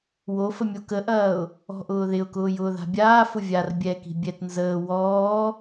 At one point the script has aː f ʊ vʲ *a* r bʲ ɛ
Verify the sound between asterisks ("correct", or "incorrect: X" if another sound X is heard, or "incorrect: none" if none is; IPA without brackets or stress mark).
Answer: correct